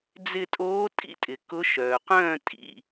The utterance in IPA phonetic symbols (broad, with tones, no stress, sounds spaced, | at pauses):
d͡z ɪ˧˩ tʼ oː˨˦ tʼ ḭ˨˦ tʼ ɪ˩ k ʊ˨˦ ʃ œː˩ q œ̃ː˥˩ tʼ ḭ˧˩